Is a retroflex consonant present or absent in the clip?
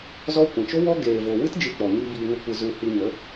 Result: absent